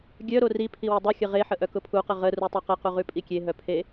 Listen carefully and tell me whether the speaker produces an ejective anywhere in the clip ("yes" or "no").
yes